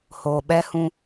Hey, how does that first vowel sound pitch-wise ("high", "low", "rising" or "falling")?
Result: low